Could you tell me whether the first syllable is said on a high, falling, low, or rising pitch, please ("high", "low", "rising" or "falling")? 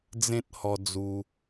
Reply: high